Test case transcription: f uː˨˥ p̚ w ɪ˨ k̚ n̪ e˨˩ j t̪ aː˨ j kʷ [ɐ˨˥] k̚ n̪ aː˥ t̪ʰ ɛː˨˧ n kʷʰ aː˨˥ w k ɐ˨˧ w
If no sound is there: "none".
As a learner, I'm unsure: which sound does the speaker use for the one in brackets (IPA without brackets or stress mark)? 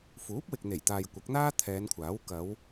ɐ˨˥